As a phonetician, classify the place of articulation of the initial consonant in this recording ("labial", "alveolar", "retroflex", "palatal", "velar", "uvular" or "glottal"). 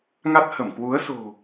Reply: velar